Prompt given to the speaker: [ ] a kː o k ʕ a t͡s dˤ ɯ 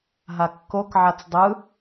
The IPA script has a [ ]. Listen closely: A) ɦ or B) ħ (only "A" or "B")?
A